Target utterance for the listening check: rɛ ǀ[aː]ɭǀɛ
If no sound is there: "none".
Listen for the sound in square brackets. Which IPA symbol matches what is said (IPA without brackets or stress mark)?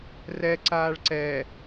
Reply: aː